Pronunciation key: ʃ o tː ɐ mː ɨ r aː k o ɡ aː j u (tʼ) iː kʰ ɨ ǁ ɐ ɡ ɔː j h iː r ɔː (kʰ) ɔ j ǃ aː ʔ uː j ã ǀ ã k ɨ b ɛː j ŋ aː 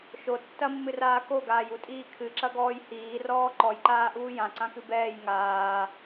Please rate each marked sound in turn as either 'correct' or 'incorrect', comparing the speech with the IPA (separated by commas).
correct, incorrect